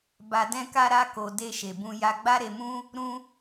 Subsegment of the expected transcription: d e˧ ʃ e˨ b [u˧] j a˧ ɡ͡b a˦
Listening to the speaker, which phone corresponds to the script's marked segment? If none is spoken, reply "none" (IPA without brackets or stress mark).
ũ˧